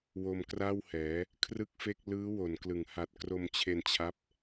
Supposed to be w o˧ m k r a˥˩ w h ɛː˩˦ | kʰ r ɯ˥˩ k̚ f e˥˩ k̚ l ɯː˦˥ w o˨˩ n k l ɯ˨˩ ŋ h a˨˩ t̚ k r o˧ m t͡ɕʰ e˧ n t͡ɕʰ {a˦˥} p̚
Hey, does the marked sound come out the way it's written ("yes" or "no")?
yes